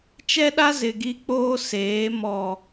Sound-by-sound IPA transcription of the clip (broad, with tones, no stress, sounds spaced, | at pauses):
t͡ʃ ɛ˦ ɗ a˦ z ɪ˨ ɡ i˦ k͡p oː˦ s eː˨˦ m ɔ˨